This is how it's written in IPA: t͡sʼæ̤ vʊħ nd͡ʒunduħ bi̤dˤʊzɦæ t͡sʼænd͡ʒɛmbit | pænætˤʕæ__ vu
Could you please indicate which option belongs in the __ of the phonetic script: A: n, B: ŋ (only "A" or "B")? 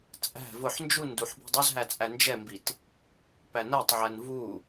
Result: A